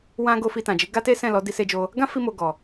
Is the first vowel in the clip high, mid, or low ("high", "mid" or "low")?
low